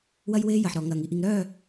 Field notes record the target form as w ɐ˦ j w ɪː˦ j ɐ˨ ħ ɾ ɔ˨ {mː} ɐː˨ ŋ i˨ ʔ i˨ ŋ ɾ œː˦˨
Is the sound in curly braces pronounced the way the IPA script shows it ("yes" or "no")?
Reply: no